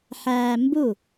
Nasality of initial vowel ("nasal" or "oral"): oral